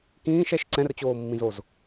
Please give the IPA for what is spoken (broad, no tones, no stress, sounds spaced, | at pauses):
k ĩː ʃ ɛ ʃ ǀ ɛ̃ r t͡ɕ oː mː ĩ z o z